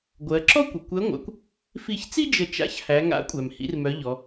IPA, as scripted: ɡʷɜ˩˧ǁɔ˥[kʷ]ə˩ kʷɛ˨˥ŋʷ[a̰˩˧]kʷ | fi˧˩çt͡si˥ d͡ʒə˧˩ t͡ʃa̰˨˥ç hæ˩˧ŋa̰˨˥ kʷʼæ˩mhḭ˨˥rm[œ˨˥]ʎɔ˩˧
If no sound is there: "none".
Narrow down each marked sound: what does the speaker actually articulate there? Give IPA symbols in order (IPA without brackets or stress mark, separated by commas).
kʷ, a̰˩˧, œ˨˥